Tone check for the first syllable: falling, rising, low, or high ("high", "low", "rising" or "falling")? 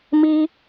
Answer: high